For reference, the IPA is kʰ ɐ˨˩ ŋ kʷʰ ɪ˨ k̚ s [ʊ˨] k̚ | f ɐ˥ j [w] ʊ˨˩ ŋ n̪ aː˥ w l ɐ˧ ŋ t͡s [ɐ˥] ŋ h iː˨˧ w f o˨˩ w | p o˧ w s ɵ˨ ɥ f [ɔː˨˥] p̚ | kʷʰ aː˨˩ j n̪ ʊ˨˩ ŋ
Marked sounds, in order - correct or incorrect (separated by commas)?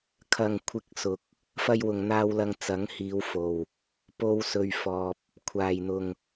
correct, correct, incorrect, incorrect